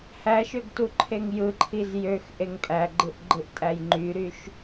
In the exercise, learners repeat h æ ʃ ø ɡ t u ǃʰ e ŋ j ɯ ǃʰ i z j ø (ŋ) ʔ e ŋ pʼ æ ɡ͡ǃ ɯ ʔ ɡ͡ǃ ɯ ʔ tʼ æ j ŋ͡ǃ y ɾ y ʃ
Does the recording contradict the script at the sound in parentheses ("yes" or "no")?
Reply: yes